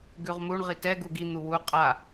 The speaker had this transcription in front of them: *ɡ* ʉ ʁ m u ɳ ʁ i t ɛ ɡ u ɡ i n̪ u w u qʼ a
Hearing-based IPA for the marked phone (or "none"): ɡ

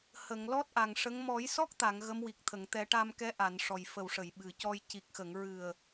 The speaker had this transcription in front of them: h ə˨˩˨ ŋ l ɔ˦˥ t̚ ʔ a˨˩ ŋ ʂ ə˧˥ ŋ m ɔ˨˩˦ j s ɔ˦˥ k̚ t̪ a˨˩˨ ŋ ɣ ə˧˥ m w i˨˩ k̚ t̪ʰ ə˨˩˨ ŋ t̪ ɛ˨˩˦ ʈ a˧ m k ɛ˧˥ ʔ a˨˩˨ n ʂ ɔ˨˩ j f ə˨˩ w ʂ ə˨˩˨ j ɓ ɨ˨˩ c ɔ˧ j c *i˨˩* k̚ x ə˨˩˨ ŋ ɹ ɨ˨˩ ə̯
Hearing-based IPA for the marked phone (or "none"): i˨˩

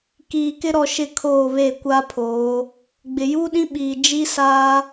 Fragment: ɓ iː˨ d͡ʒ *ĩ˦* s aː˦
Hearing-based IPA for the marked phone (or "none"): i˦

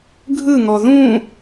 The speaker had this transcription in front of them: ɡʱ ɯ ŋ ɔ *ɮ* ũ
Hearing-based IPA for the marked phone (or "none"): ð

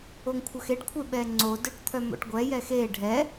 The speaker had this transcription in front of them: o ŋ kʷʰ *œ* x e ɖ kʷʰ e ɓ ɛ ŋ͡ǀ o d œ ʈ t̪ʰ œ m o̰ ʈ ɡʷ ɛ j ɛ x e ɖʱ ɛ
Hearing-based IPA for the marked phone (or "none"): œ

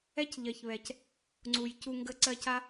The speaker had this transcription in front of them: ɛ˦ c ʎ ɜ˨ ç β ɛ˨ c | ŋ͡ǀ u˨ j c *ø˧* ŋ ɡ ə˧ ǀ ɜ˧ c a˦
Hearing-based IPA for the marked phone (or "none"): u˧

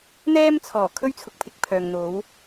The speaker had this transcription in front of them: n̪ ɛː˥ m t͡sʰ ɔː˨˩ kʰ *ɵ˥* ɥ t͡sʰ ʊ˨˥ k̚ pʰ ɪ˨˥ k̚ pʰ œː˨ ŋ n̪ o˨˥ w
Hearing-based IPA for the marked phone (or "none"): ɵ˥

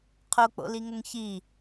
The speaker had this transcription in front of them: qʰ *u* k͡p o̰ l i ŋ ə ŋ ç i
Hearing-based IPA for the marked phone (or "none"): o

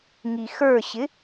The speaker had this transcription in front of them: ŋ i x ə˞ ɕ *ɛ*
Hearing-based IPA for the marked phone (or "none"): ɪ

